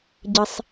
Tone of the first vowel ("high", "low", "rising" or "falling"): high